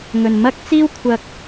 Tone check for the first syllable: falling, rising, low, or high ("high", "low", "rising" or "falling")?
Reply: low